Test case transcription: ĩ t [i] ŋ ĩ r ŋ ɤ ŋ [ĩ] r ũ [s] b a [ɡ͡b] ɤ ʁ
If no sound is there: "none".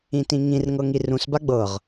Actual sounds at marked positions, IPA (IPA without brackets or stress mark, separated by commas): ĩ, i, s, ɡ͡b